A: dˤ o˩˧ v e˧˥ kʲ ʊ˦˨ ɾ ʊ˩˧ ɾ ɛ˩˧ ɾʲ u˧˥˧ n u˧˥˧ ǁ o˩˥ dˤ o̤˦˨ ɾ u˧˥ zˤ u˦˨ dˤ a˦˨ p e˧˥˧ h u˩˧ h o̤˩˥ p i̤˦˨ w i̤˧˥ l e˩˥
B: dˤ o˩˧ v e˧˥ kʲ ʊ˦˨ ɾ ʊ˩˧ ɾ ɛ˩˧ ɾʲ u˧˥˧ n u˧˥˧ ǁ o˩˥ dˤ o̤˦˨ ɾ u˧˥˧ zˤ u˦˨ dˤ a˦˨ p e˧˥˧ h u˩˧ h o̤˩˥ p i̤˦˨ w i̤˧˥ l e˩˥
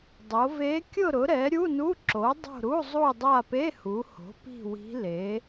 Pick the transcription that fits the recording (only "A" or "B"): B